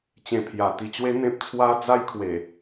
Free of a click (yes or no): yes